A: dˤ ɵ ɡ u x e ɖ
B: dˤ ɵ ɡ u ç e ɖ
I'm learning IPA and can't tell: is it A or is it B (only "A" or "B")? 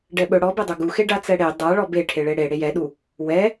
A